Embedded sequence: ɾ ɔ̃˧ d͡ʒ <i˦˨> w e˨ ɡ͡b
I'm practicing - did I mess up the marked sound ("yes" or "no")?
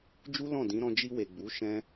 yes